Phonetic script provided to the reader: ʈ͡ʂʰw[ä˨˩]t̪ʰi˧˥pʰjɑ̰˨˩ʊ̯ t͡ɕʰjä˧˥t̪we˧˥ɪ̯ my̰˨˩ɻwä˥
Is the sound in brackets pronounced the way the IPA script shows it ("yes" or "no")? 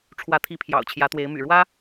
no